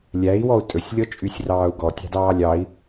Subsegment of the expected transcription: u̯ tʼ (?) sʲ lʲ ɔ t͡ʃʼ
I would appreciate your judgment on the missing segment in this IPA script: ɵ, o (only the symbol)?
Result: ɵ